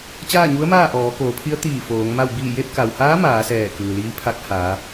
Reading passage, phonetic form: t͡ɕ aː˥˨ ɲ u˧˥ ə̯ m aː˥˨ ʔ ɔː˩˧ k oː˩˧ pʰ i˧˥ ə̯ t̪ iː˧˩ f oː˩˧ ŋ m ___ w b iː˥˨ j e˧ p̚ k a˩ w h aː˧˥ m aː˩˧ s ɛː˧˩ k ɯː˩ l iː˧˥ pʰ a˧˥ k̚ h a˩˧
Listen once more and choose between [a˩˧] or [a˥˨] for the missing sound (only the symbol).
a˥˨